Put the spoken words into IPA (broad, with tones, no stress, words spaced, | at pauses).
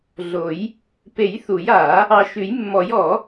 ɮo˨˩˦j | pe˨˩˦j θu˨˩˦ja˨˩˦ | ɑ˨ʃʉ˨˩˦jmːɔ˨˩˦j ɔ˨˩˦